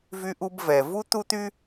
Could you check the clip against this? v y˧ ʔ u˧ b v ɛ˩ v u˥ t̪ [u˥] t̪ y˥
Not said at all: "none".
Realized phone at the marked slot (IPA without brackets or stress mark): u˥